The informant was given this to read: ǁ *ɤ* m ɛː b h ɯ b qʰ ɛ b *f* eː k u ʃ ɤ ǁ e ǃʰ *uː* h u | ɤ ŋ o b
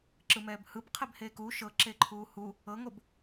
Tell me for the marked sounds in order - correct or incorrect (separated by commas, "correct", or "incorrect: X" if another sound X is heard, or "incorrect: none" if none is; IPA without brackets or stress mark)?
incorrect: ɯ, incorrect: h, correct